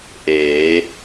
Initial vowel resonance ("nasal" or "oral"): oral